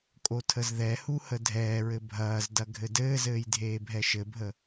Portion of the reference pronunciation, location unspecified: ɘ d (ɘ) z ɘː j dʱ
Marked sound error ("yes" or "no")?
yes